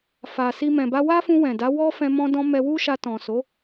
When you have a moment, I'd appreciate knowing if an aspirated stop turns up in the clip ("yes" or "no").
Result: no